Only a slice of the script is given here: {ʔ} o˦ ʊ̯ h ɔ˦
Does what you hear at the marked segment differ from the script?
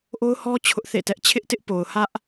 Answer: no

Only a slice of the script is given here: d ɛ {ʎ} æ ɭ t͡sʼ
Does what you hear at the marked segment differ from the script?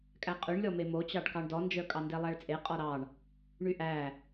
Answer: yes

